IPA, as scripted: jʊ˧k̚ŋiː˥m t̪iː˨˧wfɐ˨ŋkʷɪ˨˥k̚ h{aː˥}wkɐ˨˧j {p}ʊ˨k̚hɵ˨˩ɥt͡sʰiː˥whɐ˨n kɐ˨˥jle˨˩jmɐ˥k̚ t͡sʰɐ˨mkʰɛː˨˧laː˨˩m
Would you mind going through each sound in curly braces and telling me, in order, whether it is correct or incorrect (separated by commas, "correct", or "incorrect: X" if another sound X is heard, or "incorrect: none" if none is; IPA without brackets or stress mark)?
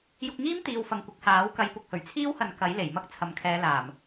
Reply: incorrect: aː˨˥, correct